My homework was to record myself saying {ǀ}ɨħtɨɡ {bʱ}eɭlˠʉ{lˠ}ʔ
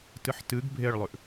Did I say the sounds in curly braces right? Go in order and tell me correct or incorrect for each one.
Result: incorrect: t, correct, incorrect: none

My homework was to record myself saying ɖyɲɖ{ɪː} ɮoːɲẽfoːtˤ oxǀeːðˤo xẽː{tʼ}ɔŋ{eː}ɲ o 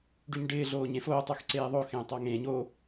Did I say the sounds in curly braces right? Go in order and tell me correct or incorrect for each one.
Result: correct, incorrect: tˤ, incorrect: ẽː

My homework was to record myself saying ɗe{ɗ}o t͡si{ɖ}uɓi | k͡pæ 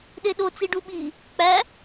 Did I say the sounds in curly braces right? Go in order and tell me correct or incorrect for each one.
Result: correct, correct

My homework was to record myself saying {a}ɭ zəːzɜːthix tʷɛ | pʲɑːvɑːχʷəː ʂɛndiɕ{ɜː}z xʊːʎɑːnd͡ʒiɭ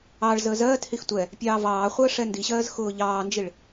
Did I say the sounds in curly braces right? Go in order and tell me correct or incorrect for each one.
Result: incorrect: ɑ, correct

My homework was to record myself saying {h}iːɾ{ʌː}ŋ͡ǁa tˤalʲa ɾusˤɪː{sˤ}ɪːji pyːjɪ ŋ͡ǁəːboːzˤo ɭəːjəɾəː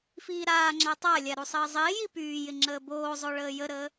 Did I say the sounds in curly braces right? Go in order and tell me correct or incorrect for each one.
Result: incorrect: f, incorrect: aː, incorrect: zˤ

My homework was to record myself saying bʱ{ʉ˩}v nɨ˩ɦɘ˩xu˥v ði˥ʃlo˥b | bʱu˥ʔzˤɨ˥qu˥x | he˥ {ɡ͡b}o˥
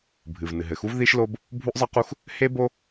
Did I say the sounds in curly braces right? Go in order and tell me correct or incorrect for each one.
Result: incorrect: ɨ˩, incorrect: b

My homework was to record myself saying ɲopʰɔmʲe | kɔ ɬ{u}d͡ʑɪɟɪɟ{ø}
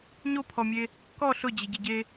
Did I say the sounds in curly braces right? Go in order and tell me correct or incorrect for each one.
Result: incorrect: ʊ, incorrect: e

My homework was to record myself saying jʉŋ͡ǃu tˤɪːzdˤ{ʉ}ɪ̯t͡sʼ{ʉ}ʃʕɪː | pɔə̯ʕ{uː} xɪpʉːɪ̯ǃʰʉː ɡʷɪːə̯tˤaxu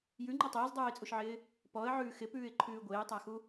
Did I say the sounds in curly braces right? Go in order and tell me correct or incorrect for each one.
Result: incorrect: ʉː, incorrect: u, incorrect: ʉː

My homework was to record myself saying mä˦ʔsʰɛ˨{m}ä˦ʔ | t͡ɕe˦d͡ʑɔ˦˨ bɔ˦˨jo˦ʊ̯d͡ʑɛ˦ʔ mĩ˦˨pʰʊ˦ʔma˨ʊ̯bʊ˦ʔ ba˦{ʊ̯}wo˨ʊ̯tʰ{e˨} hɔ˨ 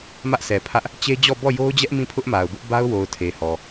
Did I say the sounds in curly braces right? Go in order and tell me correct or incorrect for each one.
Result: incorrect: pʰ, correct, correct

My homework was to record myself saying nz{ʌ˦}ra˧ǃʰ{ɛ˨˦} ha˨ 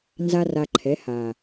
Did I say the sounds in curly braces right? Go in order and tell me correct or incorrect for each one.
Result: incorrect: a˦, correct

